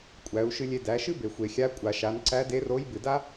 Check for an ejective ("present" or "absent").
present